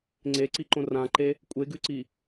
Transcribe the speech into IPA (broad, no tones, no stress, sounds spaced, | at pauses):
ŋ͡ǀ e ǀ i ǃ õ r ã ǃ e | kʷʼ e ɡ ʉ ǀ i